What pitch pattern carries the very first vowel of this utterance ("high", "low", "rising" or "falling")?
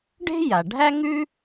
high